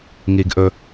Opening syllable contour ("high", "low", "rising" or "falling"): high